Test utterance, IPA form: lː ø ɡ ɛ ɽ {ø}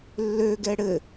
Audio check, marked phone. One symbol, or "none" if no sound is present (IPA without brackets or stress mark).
ɘ